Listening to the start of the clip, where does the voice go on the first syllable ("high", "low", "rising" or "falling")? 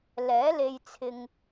rising